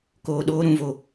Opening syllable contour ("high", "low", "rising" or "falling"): low